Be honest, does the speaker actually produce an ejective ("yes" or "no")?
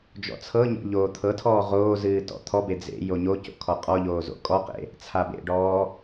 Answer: yes